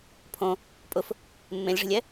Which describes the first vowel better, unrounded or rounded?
rounded